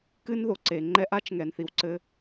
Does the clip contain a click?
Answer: yes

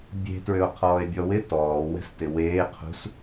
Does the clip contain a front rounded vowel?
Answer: yes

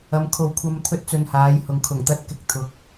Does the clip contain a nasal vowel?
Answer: no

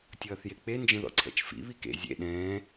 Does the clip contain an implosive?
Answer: yes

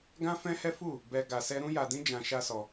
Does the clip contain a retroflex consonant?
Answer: no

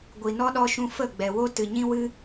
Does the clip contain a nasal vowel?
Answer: yes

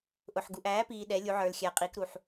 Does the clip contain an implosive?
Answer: yes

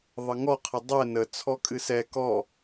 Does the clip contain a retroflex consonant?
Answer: no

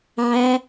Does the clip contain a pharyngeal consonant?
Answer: yes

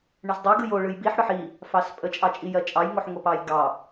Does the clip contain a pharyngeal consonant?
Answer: yes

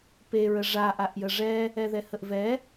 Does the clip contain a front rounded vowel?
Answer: no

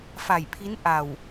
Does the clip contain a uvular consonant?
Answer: no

